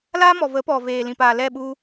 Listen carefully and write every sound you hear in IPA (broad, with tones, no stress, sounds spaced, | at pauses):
l aː˦ m ɔ˨ v ə˨˦ p ɔ˨ v eː˨ l ĩ˨ p aː˨ l ɛ˦˨ ɓ u˧